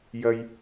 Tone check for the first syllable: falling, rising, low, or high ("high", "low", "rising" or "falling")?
high